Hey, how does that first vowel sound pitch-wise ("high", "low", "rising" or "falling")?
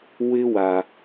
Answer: high